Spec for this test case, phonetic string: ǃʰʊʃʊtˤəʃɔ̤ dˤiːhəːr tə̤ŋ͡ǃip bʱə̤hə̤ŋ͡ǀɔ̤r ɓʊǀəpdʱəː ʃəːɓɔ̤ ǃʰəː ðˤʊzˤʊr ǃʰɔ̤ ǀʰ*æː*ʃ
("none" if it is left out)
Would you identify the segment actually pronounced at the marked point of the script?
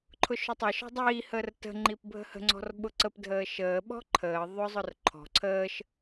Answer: əː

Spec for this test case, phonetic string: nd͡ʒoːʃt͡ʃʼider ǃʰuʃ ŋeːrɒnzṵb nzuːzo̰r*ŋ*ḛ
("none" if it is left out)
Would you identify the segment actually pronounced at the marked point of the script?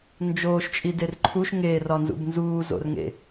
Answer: ŋ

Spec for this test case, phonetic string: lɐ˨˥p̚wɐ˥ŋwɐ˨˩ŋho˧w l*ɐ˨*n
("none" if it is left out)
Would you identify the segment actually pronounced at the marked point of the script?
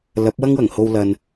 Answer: ɐ˧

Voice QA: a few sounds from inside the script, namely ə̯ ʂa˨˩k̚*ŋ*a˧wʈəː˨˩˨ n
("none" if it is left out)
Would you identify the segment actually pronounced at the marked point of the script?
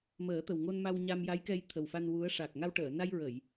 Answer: ŋ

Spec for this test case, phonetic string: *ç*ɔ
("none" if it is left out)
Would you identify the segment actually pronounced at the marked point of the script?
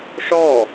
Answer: ʂ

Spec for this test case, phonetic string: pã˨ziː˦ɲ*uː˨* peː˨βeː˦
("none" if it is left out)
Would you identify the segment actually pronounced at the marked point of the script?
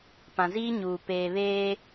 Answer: uː˨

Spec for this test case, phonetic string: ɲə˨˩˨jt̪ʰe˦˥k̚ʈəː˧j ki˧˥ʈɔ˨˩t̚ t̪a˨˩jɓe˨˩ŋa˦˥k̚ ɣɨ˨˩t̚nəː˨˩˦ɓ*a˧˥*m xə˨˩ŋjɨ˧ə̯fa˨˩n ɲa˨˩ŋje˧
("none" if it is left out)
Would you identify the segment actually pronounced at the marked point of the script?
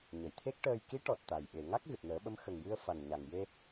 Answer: ə˧˥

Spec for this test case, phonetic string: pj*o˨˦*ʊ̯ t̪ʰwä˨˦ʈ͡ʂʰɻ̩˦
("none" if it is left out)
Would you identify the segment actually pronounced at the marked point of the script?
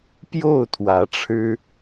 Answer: o˥˨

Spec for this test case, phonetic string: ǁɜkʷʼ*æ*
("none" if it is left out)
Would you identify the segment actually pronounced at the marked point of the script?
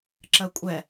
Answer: ɛ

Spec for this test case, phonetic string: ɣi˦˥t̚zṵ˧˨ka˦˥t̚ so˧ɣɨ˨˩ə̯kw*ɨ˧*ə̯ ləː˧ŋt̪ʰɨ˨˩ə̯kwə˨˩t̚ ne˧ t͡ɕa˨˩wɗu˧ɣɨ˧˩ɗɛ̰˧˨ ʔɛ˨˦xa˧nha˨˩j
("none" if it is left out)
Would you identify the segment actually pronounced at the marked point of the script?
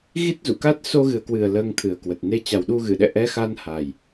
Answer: ɨ˨˩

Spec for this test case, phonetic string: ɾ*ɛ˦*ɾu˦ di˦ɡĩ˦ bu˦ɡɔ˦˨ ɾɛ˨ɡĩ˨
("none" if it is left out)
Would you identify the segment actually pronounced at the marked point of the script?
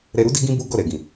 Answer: ɛ˧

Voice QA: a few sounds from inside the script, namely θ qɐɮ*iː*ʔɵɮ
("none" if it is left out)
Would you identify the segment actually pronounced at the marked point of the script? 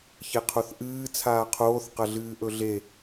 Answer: ɨː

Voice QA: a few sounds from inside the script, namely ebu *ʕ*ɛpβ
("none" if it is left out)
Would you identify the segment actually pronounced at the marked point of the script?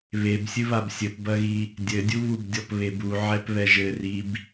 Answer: ʕ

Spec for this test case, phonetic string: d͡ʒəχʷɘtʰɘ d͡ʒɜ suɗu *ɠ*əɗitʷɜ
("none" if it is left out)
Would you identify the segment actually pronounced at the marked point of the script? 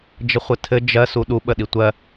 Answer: ɓ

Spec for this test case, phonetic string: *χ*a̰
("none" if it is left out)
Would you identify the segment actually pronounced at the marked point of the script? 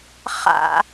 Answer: χ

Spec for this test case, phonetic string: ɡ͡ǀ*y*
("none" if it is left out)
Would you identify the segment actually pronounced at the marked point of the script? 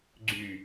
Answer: y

